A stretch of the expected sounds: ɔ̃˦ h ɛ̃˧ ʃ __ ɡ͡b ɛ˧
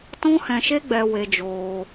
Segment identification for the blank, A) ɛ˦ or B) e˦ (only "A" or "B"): B